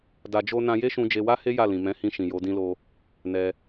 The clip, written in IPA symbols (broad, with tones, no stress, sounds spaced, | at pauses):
d a˧ d͡ʒ o˦ n ã˧ j e˦ ʃ ũ˧ d͡ʒ e˧ w a˦ h e˦ j a˦˨ l ĩ˨ m ɛ̃˨˦ h ĩ˧ ʃ ĩ˨ j o˨˦ d ĩ˦ l o˦ | n ɛ˧